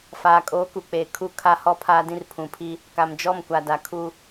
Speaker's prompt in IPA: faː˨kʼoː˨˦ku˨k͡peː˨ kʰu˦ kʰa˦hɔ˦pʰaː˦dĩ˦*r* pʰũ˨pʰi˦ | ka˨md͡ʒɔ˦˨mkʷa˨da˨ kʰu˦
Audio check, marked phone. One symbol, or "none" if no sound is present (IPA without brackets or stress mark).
r